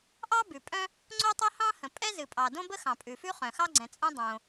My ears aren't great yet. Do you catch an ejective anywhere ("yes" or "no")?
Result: yes